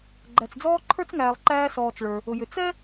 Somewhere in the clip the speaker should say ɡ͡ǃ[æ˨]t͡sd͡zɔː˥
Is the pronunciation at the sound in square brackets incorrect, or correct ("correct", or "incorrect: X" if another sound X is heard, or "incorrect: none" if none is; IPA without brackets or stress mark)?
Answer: correct